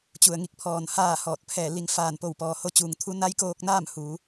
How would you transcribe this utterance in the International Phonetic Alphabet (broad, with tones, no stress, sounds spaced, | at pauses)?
t͡ɕ u˩ ə̯ ŋ i˧ k̚ pʰ ɔː˧˩ n h aː˥˨ h ɔː˧˩ t̚ pʰ ɛː˧˩ l i˩˧ ŋ f aː˧˩ n p o˧˩ w p ɔː˩ h o˧˥ t͡ɕ uː˩ ŋ t̪ʰ u˧˥ n a˧˥ j k oː˧ k̚ n aː˥˨ m h uː˩˧